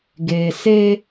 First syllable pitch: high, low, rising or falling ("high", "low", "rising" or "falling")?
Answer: low